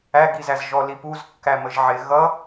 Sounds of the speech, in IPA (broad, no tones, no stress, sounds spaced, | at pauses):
æ ɡ i z æ z ʒ ɔ l i p u z kː æ m ə ʒ ʕ ɪ ɣ ʌ